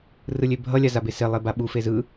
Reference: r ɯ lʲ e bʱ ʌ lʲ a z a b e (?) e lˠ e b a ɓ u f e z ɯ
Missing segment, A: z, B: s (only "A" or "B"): B